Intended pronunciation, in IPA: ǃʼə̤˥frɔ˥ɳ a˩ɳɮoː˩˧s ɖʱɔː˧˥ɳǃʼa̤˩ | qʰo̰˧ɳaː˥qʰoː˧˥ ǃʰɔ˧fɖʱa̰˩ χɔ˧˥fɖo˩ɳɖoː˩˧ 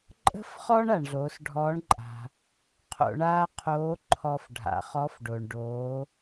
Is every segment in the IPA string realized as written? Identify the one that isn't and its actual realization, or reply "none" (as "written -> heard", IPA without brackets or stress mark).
r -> χ